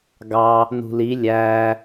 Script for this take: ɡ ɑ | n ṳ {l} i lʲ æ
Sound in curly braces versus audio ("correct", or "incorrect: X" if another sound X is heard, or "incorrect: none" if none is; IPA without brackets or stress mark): correct